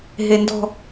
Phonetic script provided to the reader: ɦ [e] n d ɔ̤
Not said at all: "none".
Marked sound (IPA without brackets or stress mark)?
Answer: e